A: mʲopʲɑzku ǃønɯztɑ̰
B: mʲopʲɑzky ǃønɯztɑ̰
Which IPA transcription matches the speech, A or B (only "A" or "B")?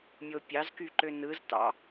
B